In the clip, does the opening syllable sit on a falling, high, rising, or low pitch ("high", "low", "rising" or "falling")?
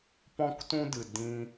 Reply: high